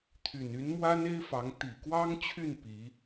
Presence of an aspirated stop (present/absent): present